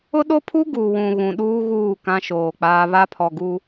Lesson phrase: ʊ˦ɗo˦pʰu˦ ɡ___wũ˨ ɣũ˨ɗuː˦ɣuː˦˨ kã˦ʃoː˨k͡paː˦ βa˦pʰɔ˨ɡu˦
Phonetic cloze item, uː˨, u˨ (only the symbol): u˨